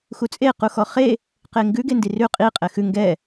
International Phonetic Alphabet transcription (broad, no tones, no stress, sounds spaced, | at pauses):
x u t͡sʼ e q u x ɔ χ e | q e ŋ ɡ ʉ ɡ e n d i r ʉ qʼ i qʼ ɛ x ʉ ŋ ɡ ɛ